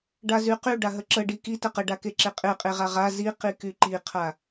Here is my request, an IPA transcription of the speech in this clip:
ɖ a z y q y ɖ a ɦ ə ǁ ə ɖ i k i t ə q ə ɖ a k e ǁ e qʼ e qʼ e ʁ a ʁ a z i q i k y ǃ i qʰ a

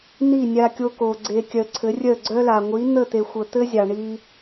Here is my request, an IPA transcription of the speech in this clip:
n i˦˨ nʲ a˧ kʲ o˧ k o˨ ɡ͡ǀ e˧ kʲ œ˨ ǀʰ ɘ˨˦ rʲ œ˦˨ ɡ͡ǀ œ˦ l a˨ ŋʷ i˨˦ n̪ ə˦˨ t̪ e˨ xʷ ə˨ t̪ ɘ˦ zʲ ɑ˨ ɳ i˧

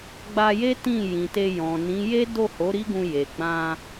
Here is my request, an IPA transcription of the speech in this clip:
ɡ͡b a˧ j e˦ t ĩ˦˨ j ĩ˨ t e˧ j ɔ̃˨ n ĩ˨˦ j e˦ d o˦˨ h o˨˦ ɾ i˦ ɡ ũ˧ j e˨ ɡ͡b ã˧

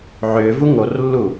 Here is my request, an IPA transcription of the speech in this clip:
ʕ ʏː v u ŋ o r lː u

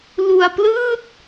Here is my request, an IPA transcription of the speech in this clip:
l u˧ a̯ p l ɯː˥˩ t̚

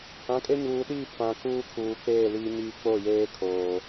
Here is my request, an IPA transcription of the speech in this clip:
h ã˨˦ kʼ e˦ ɲ uː˨ ɗ iː˦˨ f ã˨ k uː˦ kʰ uː˨ k͡p eː˦˨ l iː˨ ɲ iː˨ k͡p o˦˨ j eː˦ kʰ oː˨

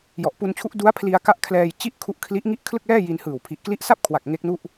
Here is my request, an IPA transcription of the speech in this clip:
j ɔ˨˩ ʔ p u˧ n t͡ɕʰ u˦˥ ʔ d u˦˥ a̯ pʰ l i˧ a̯ k a˦˥ ʔ kʰ l ɛː˧ j t͡ɕ i˥˩ ʔ kʰ u˦˥ ʔ kʰ l i˦˥ ʔ ŋ i˥˩ ʔ kʰ l ɯ˥˩ k̚ l ɛː˥˩ j i˧ n h ɯː˨˩ w pʰ i˨˩ ʔ k l i˦˥ ʔ s a˥˩ p̚ kʰ w a˨˩ k̚ ŋ e˦˥ k̚ n u˥˩ ʔ

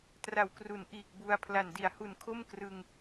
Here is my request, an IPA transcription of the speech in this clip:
t r a˨˩ w k r u˩˦ n ʔ iː˨˩ k̚ b u˧ a̯ pʰ l a˨˩ n d i˩˦ a̯ h u˨˩ n kʰ o˥˩ m k r ɯ˧ ŋ

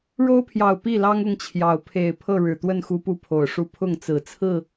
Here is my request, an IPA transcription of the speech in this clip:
ɻ o˦ ʊ̯ pʰ j ɑ˨˩ ʊ̯ p i˥˨ l ɑ˦ ŋ ʊ˦ ŋ t͡ɕʰ j ɑ˨˦ ʊ̯ pʰ e˨˩ ɪ̯ pʰ ɤ˥˨ ɻ ɻ̩˨˩ t̪ w ə˥˨ n x u˨˦ p u˨˦ pʰ o˨˩ ʊ̯ ʂ u˦ pʰ ʊ˥˨ ŋ t͡s ɹ̩˨˩ t͡sʰ ɹ̩˥˨

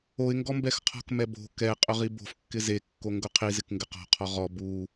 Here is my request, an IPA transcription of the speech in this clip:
o ɪ̯ ŋ ɡ ɔ m b ɛ x qʰ ɔ̤ k m ɛ b o̤ k ɛ qʼ ʊ ʁ i b o̤ f kː ɪ z e kː o ŋ ɡ ʊ qʰ i z ɪ k ŋ ɡ ɪ q ɔ̤ qʰ ɔ ʁ ɔ b u

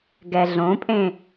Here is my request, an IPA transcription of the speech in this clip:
ɡ ɛ ɮ õ pʼ ẽ

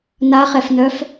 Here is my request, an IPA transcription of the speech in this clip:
n a χ ɛ f n œ f

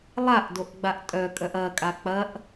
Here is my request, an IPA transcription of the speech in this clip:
lˠ a ʔ d o ʔ ɡ͡b a ʔ tʼ œ kʼ œ ʔ ɐ kʼ a k͡p ɐ ʔ

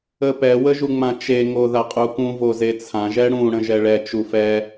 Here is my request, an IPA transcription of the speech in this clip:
ə p ɛ w ə ʒ u ŋ͡m ã t͡ʃ e ŋ o ð a qʼ u k ũ v o z e t͡sʰ ã ʒ ɛ ɽ ũ ɽ ə̃ ʒ ɛ ɭ ɛ t͡ʃ u f ɛ

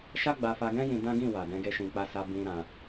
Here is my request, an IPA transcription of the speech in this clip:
ʃ a˦ ɡ͡b a˧ f a˧ ɡ ɛ̃˦ j ĩ˦ d ã˦ ɡ ĩ˦˨ w a˨ d ɛ̃˧ ɡ e˧ ʃ ĩ˨ k͡p a˧ s a˧ b ĩ˦ ɾ ã˧

